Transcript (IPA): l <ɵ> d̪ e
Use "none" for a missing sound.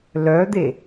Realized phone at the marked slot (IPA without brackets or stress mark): œ